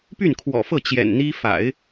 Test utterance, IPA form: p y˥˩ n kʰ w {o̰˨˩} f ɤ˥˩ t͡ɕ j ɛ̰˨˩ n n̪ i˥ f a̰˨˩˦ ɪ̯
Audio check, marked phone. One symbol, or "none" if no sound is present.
ɔ̰˨˩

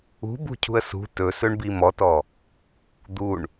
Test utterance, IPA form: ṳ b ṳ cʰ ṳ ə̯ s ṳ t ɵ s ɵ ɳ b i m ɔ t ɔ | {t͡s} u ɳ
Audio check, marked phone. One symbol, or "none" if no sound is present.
d̪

